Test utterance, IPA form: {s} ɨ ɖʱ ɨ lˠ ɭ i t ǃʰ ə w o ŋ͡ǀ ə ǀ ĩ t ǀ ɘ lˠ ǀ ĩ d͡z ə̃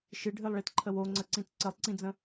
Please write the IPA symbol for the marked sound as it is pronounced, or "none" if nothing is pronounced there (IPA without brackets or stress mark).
ʃ